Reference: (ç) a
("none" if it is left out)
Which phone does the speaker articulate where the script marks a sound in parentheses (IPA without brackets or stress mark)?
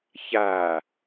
ç